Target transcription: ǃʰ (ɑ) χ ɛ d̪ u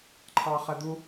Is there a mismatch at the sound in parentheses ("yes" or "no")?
no